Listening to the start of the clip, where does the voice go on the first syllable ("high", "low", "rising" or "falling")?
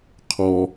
low